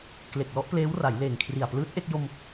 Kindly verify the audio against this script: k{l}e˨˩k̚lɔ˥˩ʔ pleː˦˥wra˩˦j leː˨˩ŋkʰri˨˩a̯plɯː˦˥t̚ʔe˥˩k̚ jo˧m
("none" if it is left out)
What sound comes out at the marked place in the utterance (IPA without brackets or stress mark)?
l